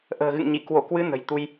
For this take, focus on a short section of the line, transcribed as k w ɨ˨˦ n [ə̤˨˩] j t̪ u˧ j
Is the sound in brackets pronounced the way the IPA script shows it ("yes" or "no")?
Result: yes